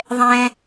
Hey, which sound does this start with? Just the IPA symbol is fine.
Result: ðˤ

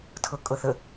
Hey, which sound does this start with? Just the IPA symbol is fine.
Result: tʰ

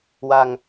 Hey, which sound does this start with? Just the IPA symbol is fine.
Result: w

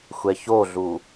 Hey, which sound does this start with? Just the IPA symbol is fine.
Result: xʷ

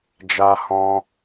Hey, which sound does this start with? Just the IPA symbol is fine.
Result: d͡ʒ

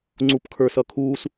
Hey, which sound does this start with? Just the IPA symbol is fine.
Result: ŋ͡ǀ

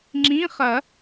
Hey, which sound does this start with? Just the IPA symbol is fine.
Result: ŋ͡ǁ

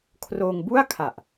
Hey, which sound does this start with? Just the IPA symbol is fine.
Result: kʰ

